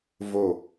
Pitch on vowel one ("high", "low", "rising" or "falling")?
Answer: falling